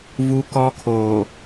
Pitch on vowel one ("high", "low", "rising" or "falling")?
high